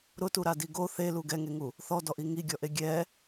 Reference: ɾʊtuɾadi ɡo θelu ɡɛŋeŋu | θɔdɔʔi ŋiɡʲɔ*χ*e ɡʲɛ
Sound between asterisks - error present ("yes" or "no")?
yes